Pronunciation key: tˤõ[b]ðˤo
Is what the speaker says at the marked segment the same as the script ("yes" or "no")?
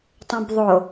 yes